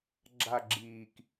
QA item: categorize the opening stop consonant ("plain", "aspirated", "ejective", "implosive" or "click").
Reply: click